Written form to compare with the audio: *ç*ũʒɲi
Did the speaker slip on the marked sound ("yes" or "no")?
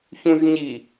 no